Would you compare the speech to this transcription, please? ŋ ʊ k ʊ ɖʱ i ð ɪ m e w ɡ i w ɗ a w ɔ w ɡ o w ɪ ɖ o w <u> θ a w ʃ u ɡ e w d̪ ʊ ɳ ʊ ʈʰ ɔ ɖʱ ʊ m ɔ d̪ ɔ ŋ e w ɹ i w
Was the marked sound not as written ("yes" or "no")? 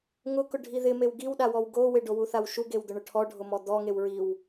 no